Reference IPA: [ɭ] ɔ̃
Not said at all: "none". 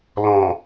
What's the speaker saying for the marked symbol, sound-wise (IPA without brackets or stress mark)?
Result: l